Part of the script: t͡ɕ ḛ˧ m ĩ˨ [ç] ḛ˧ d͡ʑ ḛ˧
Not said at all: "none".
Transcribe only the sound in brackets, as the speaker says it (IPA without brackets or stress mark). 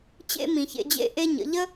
ç